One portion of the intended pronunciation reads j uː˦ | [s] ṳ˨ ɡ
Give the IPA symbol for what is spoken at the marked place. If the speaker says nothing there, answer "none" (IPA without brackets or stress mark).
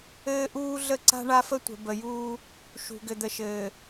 ʃ